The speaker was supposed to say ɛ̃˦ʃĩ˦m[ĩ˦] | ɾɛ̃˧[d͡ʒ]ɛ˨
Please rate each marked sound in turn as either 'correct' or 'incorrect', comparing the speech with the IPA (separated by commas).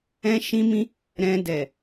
correct, incorrect